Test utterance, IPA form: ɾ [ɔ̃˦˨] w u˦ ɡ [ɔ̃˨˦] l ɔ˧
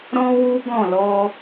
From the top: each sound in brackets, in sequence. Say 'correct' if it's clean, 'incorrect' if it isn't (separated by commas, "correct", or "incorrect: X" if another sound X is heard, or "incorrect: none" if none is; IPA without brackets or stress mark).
incorrect: ɔ̃˦, incorrect: ɔ̃˦˨